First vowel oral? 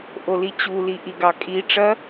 yes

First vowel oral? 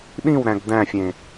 no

